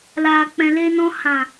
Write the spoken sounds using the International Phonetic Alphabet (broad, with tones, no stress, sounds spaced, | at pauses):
l aː˨ k͡p ɛ̃˨ l e˧ n ɔ̃˧ h ã˨